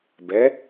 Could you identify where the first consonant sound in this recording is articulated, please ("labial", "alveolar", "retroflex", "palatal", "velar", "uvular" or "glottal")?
labial